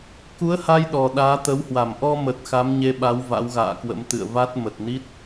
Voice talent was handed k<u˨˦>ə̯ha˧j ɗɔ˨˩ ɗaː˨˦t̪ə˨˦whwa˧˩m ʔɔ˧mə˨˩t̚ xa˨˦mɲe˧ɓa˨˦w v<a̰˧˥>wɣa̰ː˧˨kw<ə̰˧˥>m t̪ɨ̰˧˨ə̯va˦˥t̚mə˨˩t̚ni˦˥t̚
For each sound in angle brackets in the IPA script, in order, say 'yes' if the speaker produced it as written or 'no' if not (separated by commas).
yes, yes, yes